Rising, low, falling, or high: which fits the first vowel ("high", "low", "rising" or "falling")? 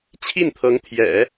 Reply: falling